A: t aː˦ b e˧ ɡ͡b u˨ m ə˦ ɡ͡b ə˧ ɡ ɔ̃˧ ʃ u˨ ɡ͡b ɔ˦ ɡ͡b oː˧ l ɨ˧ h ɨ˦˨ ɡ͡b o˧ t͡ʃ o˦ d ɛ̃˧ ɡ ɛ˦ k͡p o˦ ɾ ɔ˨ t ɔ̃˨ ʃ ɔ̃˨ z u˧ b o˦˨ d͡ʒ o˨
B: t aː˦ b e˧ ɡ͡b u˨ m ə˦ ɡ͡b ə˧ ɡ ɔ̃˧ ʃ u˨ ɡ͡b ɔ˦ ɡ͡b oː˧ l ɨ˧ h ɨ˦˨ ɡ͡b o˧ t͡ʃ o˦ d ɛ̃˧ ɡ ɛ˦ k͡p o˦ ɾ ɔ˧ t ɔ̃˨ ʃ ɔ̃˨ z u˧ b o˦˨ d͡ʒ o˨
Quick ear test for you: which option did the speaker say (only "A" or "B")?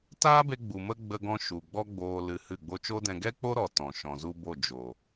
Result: A